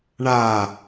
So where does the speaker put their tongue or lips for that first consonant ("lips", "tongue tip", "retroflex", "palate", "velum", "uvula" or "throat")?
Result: retroflex